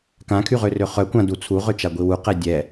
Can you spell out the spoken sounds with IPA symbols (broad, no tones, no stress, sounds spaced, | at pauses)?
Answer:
k ã kʰ y ʁ ø r ø χ œ kʷ ã d u t͡sʰ u ʁ ø t͡ʃ a ɡʷ i w u q ɛ dʲ ɛ